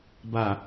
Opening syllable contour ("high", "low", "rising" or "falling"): low